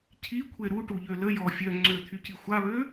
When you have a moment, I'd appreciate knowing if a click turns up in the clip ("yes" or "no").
yes